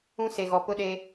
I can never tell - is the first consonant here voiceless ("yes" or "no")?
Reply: yes